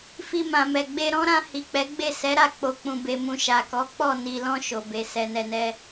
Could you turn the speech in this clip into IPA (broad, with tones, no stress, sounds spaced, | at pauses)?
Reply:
f i˧ m ã˨ m ɛ˨ ɡ͡b e˧ ɾ ɔ̃˦ ɾ ã˧ h i˨ k͡p ɛ˨˦ ɡ͡b e˦˨ s ɛ˨˦ ɾ a˦˨ k͡p o˨ k͡p ũ˨ b e˨ m ũ˨ ʃ a˨ k ɔ˨˦ k͡p ɔ˦˨ n i˨ l ɔ̃˧ ʃ o˨ b e˨ s ɛ˨ n ɛ˨ n ɛ˧